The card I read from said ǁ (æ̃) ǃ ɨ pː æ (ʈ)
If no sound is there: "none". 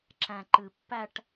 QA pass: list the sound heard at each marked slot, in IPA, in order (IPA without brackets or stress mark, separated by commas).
æ̃, ʈ